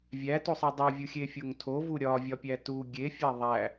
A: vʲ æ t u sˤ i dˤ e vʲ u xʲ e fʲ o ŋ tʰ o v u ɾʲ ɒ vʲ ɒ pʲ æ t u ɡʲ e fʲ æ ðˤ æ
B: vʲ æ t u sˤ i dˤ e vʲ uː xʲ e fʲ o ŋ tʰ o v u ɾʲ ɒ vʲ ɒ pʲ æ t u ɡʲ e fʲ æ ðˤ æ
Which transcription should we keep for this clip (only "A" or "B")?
A